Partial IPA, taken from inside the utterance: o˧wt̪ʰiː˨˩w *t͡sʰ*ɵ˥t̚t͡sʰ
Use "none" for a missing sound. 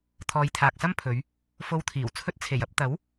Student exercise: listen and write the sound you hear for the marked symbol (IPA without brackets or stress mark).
t͡sʰ